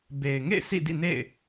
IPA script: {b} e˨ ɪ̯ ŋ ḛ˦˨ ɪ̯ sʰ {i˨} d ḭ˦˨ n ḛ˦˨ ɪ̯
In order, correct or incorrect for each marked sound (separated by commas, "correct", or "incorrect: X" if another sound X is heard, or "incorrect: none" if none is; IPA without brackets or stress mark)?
correct, incorrect: ḭ˦˨